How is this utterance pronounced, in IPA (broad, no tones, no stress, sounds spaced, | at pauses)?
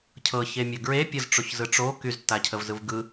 cʰ ɤ ç e mʲ ɤ ɡ ɹ e pʲ ə z ʈ͡ʂ o ç z ɯ ʈ͡ʂ o k y z tː a cʰ ə v z ɯ v ɡ ɯ